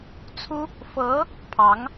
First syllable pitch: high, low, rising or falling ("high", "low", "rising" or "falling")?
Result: high